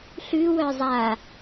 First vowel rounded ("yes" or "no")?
yes